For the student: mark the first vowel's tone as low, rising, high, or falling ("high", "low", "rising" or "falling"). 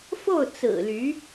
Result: falling